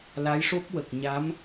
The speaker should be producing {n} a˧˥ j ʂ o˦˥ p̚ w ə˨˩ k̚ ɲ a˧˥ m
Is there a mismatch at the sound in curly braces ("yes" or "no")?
yes